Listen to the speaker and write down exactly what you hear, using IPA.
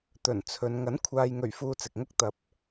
t̪ɵ˨˩nt͡sʰɵ˨n ŋɐ˨˥nkʷʰaː˨jŋɵ˨˩ɥ fuː˧t͡sɪ˨k̚ŋʊ˥k̚ t̪ɐ˨˥p̚

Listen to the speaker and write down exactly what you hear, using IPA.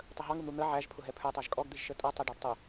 tˤəɦɑŋun̪u n̪ə ʕæʒpʰʊɦɛ pʰə˞tˤæʒ kʼɔɡ d̪iʒʃətʼʌ tˤɛɖɑɖtˤə

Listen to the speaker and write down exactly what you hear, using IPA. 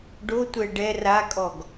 ɖotʷɛ ɖɛ rakʼɔɡ

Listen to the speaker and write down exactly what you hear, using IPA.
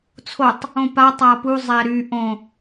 t͡sʰotˤ | õpa tˤapu zˤɛɾy ʔõ

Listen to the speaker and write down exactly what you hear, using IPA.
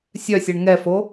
sʲœsʲɛɳ ŋɛfo

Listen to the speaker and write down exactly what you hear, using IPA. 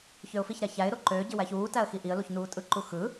çøʊ̯fiçɾæ çæɪ̯ɾo ǃøːɟi wæçuːtæə̯ xiʔiə̯luç nuːtʼɯǃu xɯ

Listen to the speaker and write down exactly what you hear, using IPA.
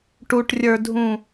ʈuʈrʲə˞dʱũ

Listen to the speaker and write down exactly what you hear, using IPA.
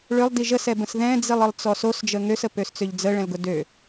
ɭølˠdi ʒəsɛbə̃s ðɛ̃d͡zilˠəlˠt͡sɔ sosd͡ʒə ŋøsəpøst͡søʎ d͡zəɭɛ̃lɡʊ dø

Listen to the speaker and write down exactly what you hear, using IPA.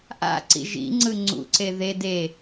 ʔa̰ǀḭ ʒḭŋ͡ǀɯ ŋ͡ǀṵǀe ðe de

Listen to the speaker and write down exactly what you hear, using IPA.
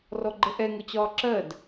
rɔɡ͡ǃəʔɛ ŋʊt͡ɕɒːǁɜd

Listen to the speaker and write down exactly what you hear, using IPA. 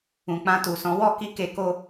ũ˨k͡pã˧tu˨sɔ̃˨˦ wɔ˦˨ki˧ ke˧ko˦

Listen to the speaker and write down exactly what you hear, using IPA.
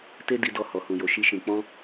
te˦di˧ dɔ˧ hɔ˨hũ˨jo˨ ʃi˧ ʃĩ˧ k͡pɔ̃˦

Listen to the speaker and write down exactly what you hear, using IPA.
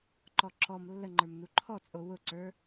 ǃɔǁɔm lːəŋ͡ǃə˞mnu ǃʰɔt͡sʼo wʊǀə˞

